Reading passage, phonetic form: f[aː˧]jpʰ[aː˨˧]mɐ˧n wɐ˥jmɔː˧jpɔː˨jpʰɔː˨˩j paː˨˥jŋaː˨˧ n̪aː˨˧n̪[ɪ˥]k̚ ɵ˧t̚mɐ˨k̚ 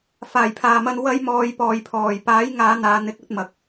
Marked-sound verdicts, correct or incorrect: incorrect: aː˨˩, incorrect: aː˨, incorrect: ɪ˨˥

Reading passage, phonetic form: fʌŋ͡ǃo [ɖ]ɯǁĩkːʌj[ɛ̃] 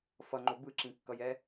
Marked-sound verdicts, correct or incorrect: incorrect: b, incorrect: ɛ

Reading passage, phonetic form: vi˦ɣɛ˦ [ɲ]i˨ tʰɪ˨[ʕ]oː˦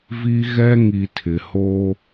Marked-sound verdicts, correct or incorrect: incorrect: ŋ, incorrect: h

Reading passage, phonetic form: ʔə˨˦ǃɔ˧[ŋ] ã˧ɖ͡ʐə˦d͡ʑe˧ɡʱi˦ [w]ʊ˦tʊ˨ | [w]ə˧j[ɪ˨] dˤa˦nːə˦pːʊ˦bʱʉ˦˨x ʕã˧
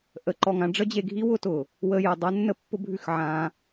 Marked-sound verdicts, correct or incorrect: correct, correct, correct, incorrect: ə˨

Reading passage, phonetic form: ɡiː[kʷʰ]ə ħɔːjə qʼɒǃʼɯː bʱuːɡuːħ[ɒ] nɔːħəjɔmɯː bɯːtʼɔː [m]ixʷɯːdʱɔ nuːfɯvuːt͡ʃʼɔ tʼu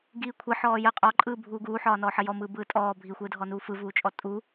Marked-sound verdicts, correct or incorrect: correct, incorrect: ɒː, incorrect: bʱ

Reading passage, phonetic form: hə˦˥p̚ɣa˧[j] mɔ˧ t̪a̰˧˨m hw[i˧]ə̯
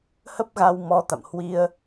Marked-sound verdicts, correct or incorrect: incorrect: w, correct

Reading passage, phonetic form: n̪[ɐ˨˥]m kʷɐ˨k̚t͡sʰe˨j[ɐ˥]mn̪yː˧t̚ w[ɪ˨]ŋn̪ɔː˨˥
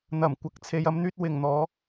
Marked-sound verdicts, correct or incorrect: incorrect: ɐ˨˩, correct, incorrect: ɪ˨˩

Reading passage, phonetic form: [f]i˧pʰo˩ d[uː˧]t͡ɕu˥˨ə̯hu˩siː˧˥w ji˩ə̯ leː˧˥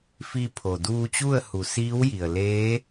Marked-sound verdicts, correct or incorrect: correct, correct

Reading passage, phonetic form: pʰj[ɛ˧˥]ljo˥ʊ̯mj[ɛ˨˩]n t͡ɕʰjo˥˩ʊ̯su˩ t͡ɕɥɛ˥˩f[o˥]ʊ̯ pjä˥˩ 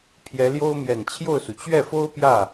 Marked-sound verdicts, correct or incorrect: correct, correct, correct

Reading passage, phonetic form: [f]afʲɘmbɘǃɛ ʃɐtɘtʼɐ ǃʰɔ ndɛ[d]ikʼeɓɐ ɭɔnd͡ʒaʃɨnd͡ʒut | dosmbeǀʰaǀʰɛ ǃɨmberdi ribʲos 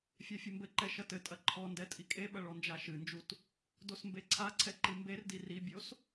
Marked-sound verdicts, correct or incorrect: incorrect: fʲ, incorrect: tʼ

